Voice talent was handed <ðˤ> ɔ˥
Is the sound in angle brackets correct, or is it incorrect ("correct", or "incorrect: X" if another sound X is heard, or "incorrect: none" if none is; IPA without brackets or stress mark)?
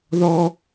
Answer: incorrect: ð